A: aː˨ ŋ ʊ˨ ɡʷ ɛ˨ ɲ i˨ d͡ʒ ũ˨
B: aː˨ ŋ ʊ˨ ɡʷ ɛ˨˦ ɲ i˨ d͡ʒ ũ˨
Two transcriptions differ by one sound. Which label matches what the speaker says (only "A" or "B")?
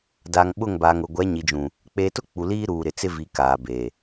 B